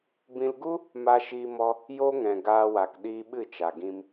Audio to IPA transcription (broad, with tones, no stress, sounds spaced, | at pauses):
b ĩ˧ l ɡ u˦ | m a˧ ʃ iː˧ m ɔ˧ | j o˦ ŋ ɛ̃˨ ɡ aː˧ w a˨ k ɗ iː˧ ɓ ɨ˦˨ t͡ʃ a˨ ɡ ĩ˧ m